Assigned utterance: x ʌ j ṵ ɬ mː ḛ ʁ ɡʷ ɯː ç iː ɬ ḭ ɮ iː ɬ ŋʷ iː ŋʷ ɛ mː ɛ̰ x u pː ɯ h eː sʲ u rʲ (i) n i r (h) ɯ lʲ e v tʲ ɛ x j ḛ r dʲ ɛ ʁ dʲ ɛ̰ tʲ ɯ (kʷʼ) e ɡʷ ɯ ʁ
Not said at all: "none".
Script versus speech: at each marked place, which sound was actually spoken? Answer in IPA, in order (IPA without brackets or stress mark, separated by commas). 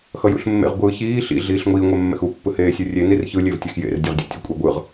e, ç, kʷʼ